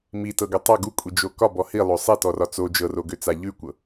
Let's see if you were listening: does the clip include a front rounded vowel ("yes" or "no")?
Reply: yes